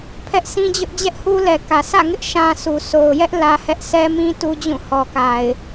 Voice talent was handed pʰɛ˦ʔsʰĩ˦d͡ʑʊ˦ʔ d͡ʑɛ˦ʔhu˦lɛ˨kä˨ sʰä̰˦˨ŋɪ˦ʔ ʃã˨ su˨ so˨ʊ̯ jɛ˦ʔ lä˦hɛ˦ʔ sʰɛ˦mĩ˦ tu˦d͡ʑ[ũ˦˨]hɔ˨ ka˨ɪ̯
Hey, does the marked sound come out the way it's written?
yes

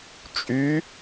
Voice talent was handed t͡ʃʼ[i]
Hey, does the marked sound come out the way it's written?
no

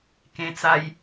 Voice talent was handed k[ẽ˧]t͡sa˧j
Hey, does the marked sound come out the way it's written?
yes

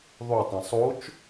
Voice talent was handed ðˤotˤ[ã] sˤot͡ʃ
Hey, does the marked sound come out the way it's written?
yes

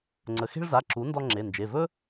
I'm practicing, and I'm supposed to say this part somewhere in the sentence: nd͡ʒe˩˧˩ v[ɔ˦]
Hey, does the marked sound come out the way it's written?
no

